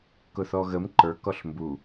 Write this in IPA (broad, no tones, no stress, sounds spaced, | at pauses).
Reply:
k ʊ θ ɔ ɣ ə m ǃ ə˞ k ɔ ɬ m b u